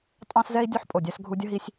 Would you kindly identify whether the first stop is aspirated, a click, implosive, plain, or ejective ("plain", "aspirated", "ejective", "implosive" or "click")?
ejective